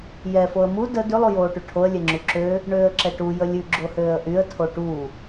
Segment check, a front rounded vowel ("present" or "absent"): present